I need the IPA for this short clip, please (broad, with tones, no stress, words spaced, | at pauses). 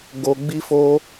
ɡo˨ ɡ͡bi˧fo˧